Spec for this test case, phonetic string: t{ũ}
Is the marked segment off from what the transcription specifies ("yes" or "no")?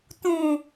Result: no